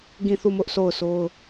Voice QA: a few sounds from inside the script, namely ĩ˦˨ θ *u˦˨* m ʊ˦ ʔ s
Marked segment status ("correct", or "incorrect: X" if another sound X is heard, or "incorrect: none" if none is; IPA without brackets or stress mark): correct